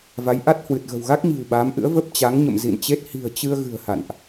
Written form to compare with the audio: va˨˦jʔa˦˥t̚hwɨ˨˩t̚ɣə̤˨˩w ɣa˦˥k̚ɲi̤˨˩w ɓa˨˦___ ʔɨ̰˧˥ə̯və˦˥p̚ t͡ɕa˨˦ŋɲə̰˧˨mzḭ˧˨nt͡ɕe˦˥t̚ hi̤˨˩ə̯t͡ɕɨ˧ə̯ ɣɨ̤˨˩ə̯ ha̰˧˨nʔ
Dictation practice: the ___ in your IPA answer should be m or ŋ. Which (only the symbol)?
m